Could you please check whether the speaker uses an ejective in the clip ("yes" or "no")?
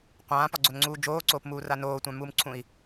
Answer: no